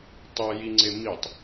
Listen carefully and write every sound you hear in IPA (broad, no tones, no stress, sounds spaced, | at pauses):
tˤ e j i ŋ͡ǀ e m i tˤ